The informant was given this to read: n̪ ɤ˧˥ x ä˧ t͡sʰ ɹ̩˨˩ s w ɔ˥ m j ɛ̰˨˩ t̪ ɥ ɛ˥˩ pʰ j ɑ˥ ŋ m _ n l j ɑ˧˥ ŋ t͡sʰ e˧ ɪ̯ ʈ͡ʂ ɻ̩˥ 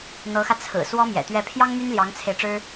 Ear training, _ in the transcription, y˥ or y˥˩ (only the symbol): y˥